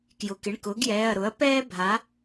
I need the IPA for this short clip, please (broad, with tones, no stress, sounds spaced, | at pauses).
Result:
k j ʊ˩˧˩ k ɪ˩˧˩ ɳ k ʊː˩˥ ɡ j ɛː˩˧˩ ɐ̯ ɾ ʊ˩˥ ɐ̯ p ɛː˥ bʱ a˩˥